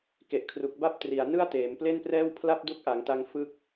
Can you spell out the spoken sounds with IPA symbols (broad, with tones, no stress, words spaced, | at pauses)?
ke˨˩ʔkʰru˨˩k̚ ba˥˩p̚tri˨˩a̯nɯ˥˩a̯ teː˩˦mple˥˩nprɛː˥˩w pʰla˥˩p̚du˦˥k̚ʔa˩˦ŋta˧ŋ fɯ˥˩k̚